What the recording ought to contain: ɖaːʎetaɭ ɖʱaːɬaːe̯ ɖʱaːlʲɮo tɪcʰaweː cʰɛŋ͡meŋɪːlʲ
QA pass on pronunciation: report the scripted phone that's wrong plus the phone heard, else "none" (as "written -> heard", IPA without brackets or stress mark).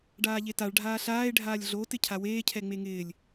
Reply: none